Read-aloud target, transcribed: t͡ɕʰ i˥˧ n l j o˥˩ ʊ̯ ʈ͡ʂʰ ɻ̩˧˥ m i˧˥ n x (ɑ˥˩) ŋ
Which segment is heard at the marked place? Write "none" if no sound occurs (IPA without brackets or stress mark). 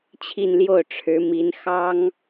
ɑ˥